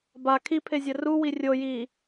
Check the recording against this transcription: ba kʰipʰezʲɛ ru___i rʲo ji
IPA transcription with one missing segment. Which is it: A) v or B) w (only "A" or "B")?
B